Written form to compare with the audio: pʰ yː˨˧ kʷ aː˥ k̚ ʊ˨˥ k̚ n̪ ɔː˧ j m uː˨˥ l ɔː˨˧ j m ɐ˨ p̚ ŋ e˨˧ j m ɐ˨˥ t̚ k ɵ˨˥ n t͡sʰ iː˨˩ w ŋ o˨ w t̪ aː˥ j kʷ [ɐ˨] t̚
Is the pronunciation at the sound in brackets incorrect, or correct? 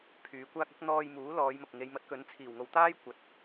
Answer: incorrect: ɐ˨˥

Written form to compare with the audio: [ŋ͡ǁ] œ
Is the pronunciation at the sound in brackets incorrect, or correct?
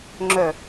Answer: correct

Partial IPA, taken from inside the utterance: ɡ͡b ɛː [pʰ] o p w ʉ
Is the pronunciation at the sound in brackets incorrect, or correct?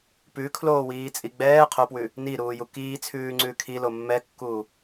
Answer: incorrect: qʰ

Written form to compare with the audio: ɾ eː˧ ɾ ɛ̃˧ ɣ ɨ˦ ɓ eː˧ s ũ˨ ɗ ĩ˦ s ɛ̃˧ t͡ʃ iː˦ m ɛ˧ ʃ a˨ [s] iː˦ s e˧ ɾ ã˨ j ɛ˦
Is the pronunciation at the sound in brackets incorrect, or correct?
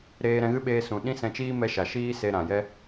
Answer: incorrect: ʃ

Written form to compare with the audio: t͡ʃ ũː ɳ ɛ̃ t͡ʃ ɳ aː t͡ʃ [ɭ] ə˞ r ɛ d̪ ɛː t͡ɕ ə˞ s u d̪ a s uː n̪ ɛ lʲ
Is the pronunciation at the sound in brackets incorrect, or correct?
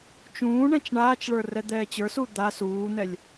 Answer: correct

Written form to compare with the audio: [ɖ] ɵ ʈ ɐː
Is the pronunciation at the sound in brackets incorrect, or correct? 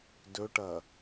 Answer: incorrect: d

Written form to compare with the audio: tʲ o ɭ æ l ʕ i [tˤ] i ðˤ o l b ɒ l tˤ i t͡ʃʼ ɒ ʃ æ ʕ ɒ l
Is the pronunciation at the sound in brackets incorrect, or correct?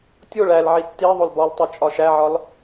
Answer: incorrect: tː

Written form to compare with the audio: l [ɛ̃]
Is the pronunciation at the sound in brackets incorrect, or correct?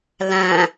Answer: incorrect: æ̃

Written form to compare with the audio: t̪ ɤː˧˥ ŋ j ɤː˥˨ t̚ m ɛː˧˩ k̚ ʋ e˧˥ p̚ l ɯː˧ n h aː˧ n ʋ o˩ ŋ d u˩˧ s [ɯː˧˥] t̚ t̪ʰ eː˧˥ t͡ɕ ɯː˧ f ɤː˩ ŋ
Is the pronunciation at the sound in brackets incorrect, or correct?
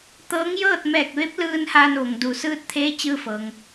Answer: correct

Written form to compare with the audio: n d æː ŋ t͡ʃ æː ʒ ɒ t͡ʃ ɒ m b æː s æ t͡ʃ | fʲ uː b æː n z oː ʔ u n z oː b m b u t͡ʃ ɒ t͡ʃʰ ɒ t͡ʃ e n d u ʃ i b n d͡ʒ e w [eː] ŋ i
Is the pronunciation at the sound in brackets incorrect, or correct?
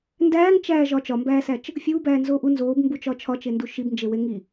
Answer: incorrect: e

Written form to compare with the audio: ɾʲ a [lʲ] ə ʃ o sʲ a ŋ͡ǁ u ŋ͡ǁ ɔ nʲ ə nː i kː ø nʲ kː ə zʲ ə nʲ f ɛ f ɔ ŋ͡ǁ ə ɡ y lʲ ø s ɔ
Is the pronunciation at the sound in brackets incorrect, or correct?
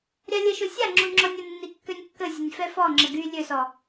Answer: correct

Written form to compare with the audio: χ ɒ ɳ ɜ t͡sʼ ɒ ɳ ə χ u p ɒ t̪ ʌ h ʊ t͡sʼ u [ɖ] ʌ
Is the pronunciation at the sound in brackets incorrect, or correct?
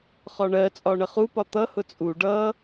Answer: correct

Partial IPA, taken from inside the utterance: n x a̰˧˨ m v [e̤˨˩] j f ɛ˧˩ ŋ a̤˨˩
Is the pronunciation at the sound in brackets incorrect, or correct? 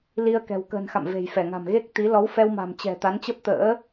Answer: correct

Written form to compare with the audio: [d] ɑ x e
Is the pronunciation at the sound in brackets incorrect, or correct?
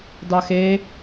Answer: correct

